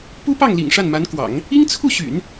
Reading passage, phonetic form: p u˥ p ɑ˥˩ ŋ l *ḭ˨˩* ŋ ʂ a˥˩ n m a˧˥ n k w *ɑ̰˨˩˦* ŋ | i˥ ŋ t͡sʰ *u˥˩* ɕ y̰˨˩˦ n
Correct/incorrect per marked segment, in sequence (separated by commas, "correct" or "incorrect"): correct, correct, correct